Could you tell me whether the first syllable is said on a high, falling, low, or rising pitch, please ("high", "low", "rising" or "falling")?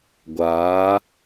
rising